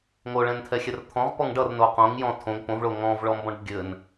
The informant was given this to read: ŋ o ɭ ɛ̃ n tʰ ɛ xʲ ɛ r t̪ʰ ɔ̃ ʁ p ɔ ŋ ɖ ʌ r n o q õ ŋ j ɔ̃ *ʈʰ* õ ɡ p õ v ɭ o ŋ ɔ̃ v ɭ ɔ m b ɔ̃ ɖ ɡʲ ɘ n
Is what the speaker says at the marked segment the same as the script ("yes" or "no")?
no